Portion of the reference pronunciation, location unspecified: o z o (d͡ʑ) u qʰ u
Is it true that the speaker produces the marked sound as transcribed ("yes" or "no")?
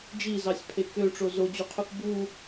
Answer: yes